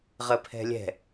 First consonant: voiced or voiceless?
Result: voiced